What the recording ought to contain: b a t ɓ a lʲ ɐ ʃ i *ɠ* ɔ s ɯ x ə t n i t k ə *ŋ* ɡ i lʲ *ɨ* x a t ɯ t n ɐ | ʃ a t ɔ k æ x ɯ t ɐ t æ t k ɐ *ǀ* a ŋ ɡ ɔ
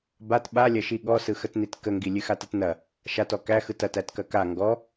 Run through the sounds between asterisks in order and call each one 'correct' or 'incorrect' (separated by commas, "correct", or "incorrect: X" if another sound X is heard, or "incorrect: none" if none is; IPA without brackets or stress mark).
correct, correct, correct, incorrect: k